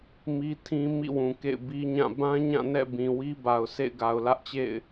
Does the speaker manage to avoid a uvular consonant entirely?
yes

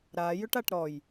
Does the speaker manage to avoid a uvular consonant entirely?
yes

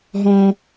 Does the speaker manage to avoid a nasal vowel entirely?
no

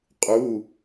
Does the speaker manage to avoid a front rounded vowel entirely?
yes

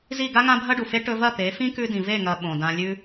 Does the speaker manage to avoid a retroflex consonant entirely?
no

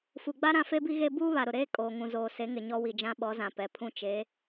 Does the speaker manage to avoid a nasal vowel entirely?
no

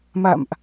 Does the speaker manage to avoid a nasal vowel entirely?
yes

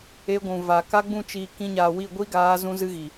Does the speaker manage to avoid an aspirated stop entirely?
yes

